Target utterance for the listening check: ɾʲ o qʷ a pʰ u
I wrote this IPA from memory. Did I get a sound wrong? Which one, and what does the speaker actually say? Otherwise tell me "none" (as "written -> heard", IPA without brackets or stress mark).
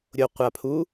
none